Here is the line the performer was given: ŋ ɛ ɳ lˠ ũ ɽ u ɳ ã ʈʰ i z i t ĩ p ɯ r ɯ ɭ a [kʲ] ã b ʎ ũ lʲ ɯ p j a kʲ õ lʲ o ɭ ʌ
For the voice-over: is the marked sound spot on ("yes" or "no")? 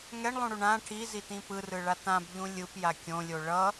no